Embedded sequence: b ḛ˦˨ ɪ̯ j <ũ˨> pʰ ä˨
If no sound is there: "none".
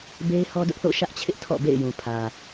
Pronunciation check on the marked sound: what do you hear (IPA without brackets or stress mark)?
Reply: ũ˨